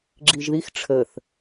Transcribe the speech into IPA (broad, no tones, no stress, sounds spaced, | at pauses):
ɡ͡ǁ i ʒ ð i x ʈ͡ʂʰ ə θ